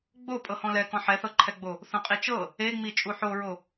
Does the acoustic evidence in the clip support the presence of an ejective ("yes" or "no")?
yes